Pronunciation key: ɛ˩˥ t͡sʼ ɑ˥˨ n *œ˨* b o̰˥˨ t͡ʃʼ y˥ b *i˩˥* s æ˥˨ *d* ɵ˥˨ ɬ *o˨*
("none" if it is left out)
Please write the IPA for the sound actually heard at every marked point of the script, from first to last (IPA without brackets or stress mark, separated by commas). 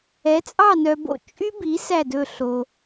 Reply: œ˨, i˩˥, d, o˨